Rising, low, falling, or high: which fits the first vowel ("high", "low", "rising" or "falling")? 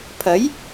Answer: rising